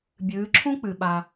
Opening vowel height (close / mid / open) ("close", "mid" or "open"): close